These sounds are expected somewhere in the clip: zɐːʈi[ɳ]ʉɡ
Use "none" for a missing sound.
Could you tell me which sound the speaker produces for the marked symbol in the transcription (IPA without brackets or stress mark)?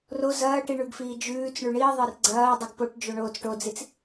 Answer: ɳ